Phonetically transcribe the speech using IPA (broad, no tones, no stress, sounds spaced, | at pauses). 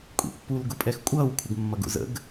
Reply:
kʷʼ ḭ pː u l ɡ ʊ pʼ ɛ x kʷʼ ʌː w kʷʰ ɪ ɡ mː ʌ ɡ ṵ z ə̰ ɡ